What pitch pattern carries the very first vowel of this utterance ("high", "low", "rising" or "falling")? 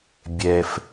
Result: low